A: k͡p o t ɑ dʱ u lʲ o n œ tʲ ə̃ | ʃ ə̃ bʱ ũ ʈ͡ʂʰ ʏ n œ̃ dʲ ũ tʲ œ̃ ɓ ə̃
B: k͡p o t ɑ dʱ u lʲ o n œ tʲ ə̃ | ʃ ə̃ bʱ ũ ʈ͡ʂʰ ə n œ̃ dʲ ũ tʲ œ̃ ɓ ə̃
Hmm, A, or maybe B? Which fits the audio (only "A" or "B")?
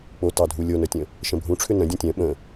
A